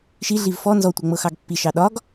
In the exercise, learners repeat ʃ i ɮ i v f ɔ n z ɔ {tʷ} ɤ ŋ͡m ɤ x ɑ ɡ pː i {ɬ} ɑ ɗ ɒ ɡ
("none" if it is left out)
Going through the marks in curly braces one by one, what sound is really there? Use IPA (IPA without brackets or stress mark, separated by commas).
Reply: tʷ, ʃ